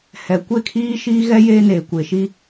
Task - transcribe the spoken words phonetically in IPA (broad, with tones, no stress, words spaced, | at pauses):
hɛ˨ kʷe˦˨kʰiː˦ʃiː˦ɣɛ˦ jeː˦neː˨kʷe˨ʃi˦